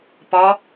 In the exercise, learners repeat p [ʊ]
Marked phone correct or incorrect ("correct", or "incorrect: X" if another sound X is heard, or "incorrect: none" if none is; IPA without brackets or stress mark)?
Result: incorrect: ɔ